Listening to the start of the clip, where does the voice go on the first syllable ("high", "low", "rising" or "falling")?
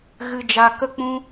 high